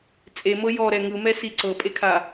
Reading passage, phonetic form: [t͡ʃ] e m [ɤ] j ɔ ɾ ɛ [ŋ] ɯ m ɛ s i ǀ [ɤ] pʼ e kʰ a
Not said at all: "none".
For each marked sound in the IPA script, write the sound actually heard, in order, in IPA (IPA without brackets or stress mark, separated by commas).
t͡sʼ, ɤ, ŋ, ɤ